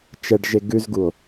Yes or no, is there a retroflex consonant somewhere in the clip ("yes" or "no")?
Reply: yes